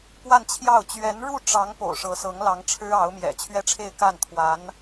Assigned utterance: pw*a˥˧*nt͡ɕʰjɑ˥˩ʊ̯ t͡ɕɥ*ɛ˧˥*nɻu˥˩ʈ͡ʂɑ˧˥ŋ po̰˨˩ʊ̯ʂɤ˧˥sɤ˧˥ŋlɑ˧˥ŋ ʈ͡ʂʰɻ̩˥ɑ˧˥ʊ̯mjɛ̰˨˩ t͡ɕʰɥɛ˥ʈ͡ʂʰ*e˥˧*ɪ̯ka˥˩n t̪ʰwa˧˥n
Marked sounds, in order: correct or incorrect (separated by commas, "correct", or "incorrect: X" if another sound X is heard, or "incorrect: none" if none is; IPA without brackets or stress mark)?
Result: correct, correct, correct